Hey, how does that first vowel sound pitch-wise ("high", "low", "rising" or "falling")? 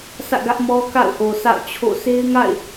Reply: falling